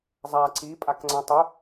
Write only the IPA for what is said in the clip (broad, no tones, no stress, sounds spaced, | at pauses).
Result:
zˤ a ǀ i pʼ a k ŋ͡ǀ ã tˤ u